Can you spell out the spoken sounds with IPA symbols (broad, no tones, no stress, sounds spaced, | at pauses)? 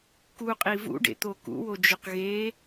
k u qʼ i v ṵ ɖ ḛ t̪ o k ṵ w o d͡ʒ ʊ q ɣ e